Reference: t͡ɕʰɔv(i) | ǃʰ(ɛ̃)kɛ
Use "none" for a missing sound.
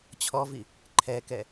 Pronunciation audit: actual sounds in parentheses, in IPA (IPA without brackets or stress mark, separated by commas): i, ɛ